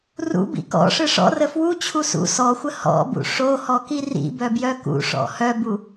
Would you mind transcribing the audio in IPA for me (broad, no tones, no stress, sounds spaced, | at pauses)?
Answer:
r ṵ b ḭ k ɔ̰ ʂ ɯ ʂ ɔ̰ r ə f w u t͡ɕʰ u s ṵ s ɔ xʷ ə h ɔ̰ b ṵ ʂ o h ɔ k i r ḭ b œ b j œ k ṵ ʂ ɔ̰ h œ b u